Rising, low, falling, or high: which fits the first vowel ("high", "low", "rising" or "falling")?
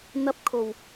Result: high